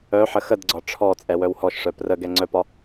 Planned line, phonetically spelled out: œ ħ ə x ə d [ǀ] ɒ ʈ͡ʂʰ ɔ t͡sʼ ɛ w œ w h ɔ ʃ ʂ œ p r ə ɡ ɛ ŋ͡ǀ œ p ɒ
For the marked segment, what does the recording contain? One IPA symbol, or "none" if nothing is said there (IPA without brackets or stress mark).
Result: ɡ͡ǀ